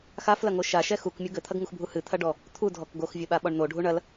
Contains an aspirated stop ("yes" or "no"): yes